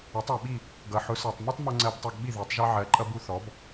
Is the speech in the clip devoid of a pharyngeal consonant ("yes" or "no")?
no